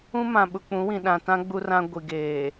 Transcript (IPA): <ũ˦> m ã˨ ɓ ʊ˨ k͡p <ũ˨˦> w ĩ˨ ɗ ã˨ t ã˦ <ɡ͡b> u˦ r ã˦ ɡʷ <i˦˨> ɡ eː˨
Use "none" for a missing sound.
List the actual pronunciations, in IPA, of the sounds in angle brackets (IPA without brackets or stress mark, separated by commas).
ũ˦, ũ˨˦, ɡ͡b, i˨